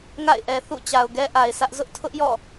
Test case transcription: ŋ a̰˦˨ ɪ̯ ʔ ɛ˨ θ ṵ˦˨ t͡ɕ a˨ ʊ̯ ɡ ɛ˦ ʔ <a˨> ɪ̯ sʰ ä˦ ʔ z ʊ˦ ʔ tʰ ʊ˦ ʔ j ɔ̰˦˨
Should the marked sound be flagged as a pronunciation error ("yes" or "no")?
no